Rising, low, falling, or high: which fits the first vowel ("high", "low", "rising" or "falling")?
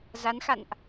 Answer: rising